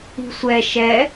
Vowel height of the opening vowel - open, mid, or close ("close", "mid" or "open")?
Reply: close